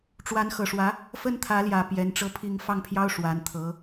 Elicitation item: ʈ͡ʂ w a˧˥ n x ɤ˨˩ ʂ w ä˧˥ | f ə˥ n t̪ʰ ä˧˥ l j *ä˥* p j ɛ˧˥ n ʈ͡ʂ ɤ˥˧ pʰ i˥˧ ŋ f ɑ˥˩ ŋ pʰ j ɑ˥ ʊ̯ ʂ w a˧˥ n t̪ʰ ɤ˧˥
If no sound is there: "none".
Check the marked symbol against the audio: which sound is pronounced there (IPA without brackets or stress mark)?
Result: ä˨˩